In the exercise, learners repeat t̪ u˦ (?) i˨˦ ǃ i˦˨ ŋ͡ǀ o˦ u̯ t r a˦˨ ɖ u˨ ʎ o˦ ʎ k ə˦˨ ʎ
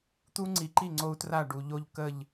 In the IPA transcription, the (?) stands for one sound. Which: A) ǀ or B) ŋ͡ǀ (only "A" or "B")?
B